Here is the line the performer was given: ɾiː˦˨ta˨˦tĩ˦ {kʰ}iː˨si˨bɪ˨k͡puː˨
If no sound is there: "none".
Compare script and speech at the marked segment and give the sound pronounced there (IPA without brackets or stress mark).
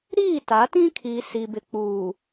kʰ